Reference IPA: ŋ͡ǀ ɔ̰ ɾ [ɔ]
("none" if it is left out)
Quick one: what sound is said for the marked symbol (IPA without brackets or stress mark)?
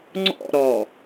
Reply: ɔ